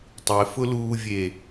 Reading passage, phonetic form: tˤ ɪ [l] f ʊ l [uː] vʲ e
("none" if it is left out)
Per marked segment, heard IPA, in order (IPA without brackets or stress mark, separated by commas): none, uː